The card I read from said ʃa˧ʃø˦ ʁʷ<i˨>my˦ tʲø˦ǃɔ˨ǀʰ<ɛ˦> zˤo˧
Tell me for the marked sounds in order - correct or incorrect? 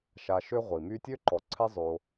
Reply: correct, correct

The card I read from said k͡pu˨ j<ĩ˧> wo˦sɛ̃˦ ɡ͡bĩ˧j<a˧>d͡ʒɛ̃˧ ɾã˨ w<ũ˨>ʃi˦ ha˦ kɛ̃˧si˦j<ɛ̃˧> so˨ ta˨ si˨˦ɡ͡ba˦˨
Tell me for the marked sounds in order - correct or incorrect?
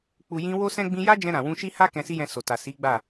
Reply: correct, incorrect: a˦, incorrect: ũ˧, correct

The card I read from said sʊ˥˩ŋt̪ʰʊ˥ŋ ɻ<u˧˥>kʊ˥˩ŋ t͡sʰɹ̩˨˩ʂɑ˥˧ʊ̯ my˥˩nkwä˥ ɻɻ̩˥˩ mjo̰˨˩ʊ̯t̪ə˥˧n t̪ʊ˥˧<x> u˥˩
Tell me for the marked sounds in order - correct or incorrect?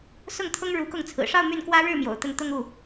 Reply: correct, incorrect: ŋ

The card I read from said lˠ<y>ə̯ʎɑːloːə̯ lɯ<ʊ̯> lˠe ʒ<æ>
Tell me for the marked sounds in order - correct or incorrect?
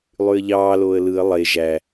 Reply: correct, incorrect: ə̯, correct

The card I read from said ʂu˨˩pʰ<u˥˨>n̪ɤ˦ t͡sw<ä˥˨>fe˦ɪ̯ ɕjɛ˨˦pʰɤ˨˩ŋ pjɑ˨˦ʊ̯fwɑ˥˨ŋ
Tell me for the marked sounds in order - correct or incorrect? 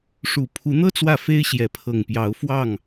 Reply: incorrect: u˨˦, correct

